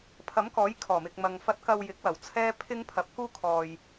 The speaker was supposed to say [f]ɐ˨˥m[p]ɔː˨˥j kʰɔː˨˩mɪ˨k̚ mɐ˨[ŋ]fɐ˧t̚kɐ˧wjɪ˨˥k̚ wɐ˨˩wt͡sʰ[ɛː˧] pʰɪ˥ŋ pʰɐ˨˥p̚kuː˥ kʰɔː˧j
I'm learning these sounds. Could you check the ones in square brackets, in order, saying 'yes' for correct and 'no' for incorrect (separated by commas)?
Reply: no, no, yes, no